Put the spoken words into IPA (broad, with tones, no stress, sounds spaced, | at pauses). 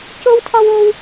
c o˥ w tʰ ɒ˥ w o˥ w